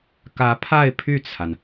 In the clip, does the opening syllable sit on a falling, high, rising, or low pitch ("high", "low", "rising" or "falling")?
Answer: rising